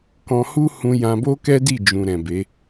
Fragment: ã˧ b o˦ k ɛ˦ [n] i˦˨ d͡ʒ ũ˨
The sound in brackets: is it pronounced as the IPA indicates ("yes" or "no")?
no